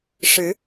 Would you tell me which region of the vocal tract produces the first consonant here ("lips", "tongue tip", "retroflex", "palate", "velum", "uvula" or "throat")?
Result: retroflex